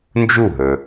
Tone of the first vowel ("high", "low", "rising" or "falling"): falling